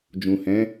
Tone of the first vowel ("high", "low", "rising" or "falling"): low